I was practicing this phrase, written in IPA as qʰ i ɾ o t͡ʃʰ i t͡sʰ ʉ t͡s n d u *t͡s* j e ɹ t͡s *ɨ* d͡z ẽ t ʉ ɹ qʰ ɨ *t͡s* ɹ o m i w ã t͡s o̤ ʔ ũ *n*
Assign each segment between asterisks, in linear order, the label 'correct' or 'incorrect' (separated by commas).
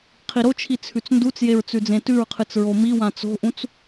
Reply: correct, incorrect, correct, incorrect